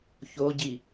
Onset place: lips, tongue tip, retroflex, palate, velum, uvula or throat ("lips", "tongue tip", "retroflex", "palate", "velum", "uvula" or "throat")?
palate